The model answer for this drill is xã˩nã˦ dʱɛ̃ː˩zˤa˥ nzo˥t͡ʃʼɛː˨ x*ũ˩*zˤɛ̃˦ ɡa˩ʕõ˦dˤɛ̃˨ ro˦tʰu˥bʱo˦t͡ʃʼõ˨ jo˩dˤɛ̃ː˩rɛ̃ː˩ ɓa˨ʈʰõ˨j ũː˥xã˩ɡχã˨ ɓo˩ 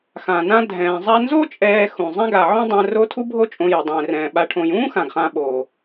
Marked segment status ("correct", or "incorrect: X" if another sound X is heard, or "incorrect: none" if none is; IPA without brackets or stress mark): correct